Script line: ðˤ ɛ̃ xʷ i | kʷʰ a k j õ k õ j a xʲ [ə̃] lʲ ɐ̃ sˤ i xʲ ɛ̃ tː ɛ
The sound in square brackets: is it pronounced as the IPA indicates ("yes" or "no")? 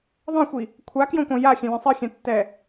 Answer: no